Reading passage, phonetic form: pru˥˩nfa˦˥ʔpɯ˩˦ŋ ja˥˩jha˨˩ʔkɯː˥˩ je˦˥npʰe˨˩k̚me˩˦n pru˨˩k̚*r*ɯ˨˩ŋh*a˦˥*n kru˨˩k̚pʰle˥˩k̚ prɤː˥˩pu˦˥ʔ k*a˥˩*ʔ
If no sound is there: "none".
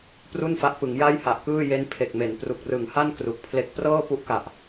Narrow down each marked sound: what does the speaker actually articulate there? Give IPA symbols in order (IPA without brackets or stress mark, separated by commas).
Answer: r, a˥˩, a˨˩